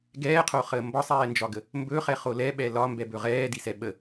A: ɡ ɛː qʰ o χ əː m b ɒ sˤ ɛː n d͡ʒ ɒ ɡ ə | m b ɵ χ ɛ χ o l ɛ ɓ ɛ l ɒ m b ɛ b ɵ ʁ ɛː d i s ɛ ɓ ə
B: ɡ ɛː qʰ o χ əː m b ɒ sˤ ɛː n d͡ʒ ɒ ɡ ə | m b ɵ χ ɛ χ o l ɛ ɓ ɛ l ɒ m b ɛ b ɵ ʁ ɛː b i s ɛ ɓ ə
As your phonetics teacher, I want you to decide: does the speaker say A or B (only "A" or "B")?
A